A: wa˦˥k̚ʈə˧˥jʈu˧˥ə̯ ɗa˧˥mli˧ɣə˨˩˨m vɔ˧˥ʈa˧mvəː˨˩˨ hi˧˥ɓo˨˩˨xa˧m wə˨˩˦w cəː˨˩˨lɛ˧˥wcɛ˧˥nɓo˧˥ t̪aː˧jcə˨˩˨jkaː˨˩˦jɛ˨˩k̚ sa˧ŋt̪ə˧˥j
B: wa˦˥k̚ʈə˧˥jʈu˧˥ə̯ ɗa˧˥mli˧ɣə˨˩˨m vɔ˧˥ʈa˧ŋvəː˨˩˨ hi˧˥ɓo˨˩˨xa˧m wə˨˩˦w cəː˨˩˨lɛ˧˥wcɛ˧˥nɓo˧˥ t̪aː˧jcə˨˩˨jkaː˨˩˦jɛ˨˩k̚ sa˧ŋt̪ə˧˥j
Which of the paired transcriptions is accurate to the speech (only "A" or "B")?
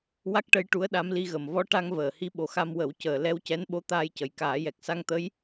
B